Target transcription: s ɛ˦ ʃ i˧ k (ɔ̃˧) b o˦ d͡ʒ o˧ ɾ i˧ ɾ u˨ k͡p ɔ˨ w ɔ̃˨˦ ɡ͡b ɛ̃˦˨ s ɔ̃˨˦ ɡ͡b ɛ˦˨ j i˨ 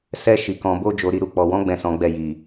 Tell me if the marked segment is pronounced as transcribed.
yes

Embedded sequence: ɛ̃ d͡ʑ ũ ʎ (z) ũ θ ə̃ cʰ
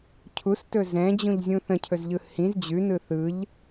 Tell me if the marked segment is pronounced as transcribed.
no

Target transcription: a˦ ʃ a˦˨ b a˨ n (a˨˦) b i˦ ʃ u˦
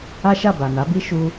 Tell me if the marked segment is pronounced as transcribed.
yes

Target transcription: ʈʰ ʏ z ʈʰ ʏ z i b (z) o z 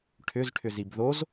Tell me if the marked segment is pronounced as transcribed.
no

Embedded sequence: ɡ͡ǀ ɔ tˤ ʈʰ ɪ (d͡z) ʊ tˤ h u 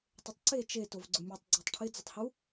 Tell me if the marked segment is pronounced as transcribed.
yes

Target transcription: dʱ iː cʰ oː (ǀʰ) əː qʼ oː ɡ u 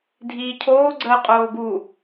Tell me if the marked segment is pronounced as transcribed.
no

